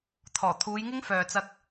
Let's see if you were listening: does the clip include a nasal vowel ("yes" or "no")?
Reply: no